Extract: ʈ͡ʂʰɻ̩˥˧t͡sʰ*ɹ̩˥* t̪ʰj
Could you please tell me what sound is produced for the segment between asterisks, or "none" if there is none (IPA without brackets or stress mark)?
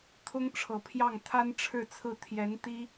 ɹ̩˥˩